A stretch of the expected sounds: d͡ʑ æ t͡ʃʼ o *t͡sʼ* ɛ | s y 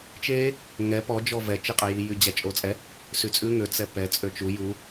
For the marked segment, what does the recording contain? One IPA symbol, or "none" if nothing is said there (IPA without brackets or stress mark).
t͡sʼ